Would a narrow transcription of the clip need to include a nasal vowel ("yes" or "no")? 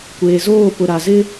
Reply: no